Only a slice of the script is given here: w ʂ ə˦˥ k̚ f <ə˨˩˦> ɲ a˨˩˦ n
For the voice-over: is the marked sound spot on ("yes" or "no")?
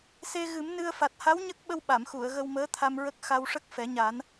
no